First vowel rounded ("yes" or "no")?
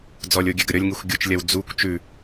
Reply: yes